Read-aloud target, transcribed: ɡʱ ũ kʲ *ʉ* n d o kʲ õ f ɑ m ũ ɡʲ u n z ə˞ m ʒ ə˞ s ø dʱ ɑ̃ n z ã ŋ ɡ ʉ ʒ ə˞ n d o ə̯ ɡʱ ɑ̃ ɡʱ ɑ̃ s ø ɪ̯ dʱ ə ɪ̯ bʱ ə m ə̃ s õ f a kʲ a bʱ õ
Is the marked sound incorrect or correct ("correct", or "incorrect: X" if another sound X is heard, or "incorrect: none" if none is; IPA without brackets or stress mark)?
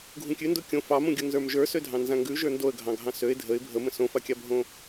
correct